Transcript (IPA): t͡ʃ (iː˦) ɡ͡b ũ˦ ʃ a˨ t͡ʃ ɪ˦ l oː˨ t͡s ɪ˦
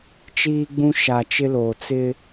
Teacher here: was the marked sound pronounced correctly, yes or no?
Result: yes